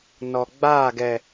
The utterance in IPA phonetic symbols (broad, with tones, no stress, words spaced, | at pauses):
nɔ˨ ɡ͡baː˦˨ɡɛ˨